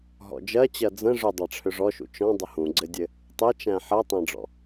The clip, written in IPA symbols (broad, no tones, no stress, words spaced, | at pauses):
ɦɔ̰d͡ʒɜt͡ɕɜ d͡zə̃ ʐʏ dˤaʈ͡ʂʰʏʐɔʃṵ t͡ʃɔ̃ dˤəhũɡ͡ǀɘdʲɘ | tˤɘt͡ʃæ̃ ħɜtˤæ̃ɖ͡ʐɔ̰